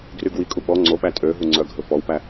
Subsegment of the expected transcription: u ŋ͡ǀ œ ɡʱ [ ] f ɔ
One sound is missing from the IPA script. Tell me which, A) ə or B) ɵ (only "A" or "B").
B